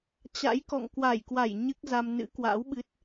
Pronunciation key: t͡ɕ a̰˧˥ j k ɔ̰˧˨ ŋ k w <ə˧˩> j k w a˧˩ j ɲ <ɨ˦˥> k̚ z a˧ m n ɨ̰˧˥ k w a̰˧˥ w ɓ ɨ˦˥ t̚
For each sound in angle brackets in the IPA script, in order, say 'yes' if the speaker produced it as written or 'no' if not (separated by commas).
no, yes